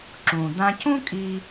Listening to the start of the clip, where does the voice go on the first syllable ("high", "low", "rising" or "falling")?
low